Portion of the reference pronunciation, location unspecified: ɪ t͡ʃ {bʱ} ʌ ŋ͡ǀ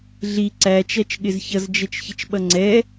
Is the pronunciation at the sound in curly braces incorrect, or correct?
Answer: incorrect